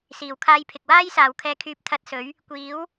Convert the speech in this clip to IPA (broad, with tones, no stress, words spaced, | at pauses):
siː˨˩wkʰaː˧j pʰɪ˨k̚waː˥jsaː˨w kʰɛː˧kʰyː˧p̚ t̪ʰɐ˧t̚sɵ˨˥ɥ | kʷiː˨˥w